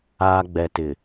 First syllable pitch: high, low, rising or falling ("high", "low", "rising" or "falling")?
low